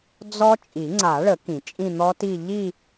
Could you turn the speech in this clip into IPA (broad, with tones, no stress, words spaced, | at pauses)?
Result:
d͡zɔ˦˥ t͡ʃʼi˨˩˦ŋ͡ǀa˨˩˦ɭə˨˩˦ kĩ˨˩˦t͡ʃʼĩ˥˧n̪ɔ˦˥ti˥˧ ʎi˥˧